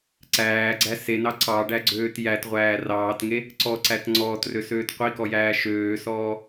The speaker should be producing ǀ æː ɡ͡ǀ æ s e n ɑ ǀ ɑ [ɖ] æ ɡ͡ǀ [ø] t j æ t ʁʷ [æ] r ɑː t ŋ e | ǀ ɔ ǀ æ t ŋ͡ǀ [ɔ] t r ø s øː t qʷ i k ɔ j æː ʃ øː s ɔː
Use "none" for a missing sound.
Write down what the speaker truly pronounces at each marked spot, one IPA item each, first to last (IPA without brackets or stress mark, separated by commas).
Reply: ɖ, øː, æː, ɔː